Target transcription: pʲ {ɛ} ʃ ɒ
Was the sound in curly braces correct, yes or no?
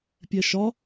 yes